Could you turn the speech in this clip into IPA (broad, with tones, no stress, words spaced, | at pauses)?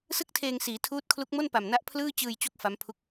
sɯ˥˩k̚tʰeː˧ŋsiː˩˦ tʰuː˦˥t̚kʰlu˦˥k̚mo˥˩n pa˨˩mna˦˥ʔ pʰlɯː˥˩ t͡ɕɯː˧jt͡ɕu˦˥k̚ fa˦˥mpʰu˥˩k̚